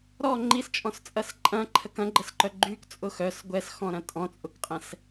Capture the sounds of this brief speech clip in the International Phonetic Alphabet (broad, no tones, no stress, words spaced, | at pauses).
ɾɔ ŋ͡ǃist͡ʃʼɔ̃st͡sʼɐs ǃʼɐ̃ǃʰək ɐ̃ɡ͡ǃəsǃœ ɡ͡ǃykt͡sʼʊ xœs ɡʷɛsxɔ̃ɾɐ̃ tʼɔ̃t͡sʼʊkqʼɛ̃s